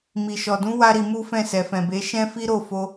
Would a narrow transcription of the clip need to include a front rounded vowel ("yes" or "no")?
no